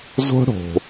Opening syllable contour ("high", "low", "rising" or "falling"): high